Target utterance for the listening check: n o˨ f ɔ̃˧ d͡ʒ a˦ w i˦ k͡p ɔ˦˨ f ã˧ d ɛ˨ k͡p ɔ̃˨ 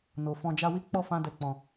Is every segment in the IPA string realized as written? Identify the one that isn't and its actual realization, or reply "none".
none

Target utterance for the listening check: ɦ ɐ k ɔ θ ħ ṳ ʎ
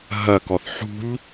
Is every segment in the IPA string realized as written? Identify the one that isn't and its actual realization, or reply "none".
none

